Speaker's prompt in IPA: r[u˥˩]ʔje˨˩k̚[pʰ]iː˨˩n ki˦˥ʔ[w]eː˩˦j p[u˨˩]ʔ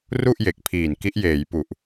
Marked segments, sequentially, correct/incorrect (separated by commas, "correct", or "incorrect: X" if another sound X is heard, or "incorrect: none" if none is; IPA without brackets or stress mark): correct, correct, incorrect: j, correct